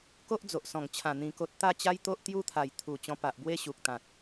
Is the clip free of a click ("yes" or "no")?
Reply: yes